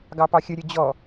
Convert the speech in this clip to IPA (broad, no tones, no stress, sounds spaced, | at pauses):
ɡ ɑ p ɑ xʲ ə ɾʲ ə d͡ʑ ɔ